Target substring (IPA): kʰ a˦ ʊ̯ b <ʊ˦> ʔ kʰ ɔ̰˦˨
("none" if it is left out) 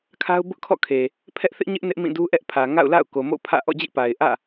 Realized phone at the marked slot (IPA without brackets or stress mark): ʊ˦